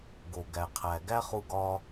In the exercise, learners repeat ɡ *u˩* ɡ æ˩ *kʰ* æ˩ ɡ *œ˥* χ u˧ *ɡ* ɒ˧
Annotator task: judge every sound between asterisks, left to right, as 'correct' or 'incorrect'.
incorrect: o˩, incorrect: qʰ, incorrect: æ˥, correct

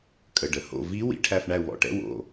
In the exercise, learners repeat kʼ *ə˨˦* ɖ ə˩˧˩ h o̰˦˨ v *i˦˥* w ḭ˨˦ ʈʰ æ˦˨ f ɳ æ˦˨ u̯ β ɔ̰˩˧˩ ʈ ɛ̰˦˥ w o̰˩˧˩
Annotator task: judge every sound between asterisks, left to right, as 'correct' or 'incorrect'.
incorrect: ə˩˧˩, correct

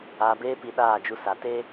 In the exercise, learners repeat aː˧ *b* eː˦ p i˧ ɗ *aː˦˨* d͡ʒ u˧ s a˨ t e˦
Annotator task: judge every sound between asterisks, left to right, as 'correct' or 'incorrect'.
correct, correct

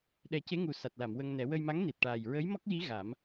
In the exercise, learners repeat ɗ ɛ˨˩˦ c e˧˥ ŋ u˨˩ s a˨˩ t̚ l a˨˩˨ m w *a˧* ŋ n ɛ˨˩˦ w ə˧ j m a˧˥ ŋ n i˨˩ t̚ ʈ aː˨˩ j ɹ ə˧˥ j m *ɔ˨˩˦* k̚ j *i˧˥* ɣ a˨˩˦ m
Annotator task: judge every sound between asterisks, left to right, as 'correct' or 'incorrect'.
incorrect: ə˧, incorrect: ɔ˦˥, correct

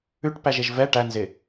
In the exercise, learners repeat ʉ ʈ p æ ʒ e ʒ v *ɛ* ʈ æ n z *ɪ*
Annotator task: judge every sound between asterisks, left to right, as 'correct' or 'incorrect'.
correct, correct

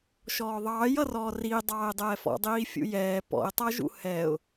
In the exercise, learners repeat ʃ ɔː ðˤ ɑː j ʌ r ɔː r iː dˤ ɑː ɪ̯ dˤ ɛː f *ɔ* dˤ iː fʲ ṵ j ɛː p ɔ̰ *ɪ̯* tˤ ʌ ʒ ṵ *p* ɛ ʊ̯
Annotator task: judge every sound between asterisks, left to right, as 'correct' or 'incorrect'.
incorrect: ɔ̰, correct, incorrect: h

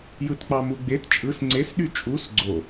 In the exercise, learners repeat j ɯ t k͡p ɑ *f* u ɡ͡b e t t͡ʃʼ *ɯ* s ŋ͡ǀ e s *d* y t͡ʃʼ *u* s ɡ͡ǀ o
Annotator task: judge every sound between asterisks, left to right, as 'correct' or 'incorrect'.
incorrect: m, correct, incorrect: ɗ, correct

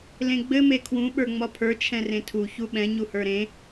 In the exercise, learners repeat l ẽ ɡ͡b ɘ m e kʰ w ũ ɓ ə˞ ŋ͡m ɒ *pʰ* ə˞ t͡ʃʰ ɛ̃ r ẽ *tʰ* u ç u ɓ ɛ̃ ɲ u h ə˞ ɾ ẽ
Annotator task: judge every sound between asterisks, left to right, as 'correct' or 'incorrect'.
correct, correct

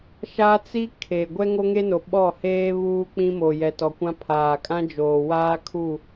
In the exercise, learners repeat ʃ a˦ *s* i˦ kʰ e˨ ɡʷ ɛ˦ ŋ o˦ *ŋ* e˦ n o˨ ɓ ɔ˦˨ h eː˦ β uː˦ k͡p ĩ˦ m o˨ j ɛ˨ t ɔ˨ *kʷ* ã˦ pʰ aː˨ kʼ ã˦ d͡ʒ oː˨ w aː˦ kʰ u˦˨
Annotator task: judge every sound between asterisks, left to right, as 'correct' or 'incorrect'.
incorrect: t͡s, correct, correct

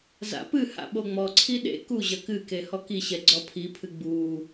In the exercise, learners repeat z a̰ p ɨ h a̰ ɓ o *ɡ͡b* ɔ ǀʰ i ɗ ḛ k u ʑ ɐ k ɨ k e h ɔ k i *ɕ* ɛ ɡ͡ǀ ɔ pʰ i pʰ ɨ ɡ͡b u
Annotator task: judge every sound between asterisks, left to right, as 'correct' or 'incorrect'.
incorrect: ŋ͡m, correct

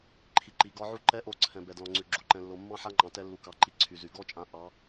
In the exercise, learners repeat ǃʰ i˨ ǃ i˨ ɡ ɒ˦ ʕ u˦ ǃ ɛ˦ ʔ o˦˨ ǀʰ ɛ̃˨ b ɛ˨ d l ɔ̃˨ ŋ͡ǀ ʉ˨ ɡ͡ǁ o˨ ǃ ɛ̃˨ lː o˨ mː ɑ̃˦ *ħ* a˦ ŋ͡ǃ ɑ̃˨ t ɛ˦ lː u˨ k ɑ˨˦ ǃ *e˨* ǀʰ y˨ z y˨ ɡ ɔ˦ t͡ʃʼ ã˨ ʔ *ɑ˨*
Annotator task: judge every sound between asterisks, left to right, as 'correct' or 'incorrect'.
correct, incorrect: i˨, incorrect: ɑ˨˦

